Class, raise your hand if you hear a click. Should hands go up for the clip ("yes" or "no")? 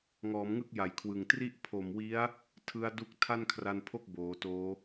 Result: no